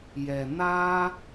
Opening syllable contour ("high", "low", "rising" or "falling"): low